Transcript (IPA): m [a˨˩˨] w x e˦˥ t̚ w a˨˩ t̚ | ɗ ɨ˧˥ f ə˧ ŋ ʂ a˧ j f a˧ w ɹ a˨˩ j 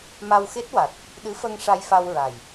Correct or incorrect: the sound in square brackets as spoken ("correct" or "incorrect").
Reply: incorrect